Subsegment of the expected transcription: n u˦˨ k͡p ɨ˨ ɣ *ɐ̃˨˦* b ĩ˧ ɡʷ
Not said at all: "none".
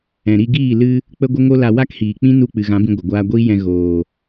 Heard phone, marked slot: ã˨˦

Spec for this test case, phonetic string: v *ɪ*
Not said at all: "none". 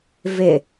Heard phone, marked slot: ɪ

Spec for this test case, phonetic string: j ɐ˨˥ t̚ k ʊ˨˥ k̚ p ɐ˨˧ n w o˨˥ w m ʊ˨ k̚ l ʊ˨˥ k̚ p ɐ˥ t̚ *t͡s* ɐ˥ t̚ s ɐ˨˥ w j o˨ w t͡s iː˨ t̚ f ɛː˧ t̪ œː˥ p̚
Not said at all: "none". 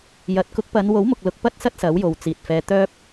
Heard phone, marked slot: s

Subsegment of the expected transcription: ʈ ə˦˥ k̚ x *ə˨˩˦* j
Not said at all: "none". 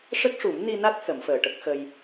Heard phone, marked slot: ə˧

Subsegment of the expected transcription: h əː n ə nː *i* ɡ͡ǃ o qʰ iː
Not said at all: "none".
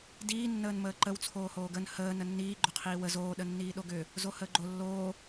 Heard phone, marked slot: iː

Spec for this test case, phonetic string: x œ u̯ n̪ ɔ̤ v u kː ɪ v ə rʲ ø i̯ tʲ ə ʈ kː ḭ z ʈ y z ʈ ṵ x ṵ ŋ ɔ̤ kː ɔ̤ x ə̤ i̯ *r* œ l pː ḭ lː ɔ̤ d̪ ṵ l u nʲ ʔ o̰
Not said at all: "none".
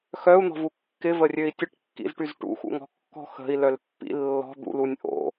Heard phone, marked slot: l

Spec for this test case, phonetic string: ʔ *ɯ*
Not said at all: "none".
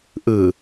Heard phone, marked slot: ɯ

